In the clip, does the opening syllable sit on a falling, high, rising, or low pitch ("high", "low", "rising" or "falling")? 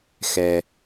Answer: low